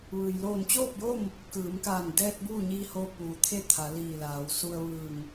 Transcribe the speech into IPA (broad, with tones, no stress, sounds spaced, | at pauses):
ʋ ɯː˩ j l oː˧˩ n t͡ɕ oː˥˨ p̚ j o˥˨ m | k ɯː˩˧ m k aː˧˩ n d ɛː˧ t̚ b uː˥˨ ɲ iː˧ h oː˧ p uː˩ t̪ʰ e˥˨ t̪ʰ a˩˧ l iː˧˩ l aː˩˧ w s u˧ ə̯ ʋ ɯː˧˩ ŋ